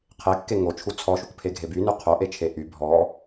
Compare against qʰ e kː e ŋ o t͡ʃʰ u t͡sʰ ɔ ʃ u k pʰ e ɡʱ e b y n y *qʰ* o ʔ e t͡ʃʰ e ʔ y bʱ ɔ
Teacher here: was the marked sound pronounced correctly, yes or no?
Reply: yes